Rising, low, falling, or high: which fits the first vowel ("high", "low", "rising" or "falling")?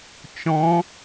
rising